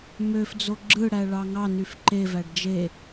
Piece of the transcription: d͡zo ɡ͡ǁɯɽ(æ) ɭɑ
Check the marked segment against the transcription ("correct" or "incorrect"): correct